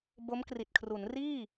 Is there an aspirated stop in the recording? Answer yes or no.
yes